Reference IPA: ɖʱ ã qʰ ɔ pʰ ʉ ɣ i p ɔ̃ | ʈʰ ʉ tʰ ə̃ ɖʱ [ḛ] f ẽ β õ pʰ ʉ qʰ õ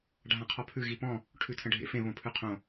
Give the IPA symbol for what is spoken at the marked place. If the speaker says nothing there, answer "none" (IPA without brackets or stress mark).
ḛ